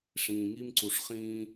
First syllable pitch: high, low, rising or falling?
low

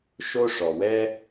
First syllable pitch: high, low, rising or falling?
high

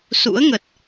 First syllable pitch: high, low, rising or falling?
rising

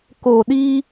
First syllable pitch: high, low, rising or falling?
low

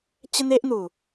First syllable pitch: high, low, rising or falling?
high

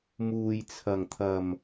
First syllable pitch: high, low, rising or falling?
low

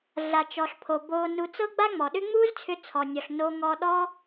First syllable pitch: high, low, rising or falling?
low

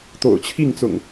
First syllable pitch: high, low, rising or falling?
low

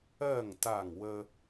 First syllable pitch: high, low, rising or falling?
falling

